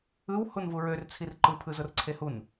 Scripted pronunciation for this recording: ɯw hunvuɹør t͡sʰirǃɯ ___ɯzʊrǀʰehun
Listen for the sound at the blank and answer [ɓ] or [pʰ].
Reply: pʰ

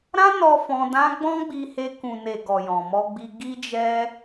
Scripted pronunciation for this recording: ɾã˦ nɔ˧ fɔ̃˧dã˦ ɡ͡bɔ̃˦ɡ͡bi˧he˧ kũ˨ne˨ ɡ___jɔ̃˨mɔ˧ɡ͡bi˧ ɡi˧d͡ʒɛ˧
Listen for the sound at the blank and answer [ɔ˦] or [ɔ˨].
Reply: ɔ˨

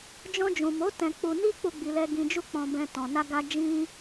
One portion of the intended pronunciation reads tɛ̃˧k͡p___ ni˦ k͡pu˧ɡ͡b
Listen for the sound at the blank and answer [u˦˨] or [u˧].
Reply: u˧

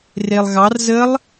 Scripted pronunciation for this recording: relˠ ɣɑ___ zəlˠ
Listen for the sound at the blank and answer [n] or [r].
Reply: r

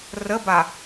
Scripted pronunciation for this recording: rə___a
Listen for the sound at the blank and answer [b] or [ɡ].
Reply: b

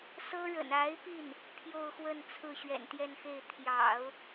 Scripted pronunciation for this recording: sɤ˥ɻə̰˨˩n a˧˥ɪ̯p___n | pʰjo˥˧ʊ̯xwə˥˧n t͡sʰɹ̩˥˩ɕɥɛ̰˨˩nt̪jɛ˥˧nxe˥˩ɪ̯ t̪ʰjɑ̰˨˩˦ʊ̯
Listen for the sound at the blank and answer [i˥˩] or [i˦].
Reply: i˥˩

